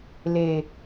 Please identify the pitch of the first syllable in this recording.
low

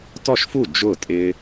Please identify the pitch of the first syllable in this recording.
falling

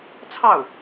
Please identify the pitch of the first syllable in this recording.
falling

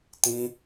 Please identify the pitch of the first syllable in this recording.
high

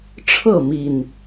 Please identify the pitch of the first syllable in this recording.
falling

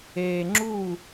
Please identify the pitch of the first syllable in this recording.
high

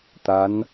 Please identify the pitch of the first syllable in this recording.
rising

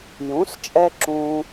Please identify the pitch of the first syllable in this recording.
rising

